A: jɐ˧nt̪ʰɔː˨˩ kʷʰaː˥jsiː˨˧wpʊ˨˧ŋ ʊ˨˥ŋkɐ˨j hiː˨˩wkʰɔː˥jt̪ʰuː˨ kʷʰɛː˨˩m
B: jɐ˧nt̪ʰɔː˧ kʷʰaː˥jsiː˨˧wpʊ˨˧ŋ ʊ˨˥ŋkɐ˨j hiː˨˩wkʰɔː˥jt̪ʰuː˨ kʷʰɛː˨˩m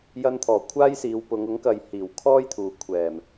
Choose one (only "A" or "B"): A